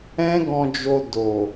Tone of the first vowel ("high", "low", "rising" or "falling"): high